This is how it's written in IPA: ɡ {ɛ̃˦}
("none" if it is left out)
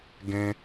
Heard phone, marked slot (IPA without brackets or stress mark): ɛ̃˦